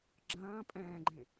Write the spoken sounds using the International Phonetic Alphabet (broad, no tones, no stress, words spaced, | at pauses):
ɡ͡ǁɐ̃ː pʼɛ̃ːɡ͡ǃẽ